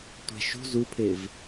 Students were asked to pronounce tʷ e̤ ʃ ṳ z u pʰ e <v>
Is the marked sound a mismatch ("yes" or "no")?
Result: no